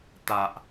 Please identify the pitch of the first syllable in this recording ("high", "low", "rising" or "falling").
low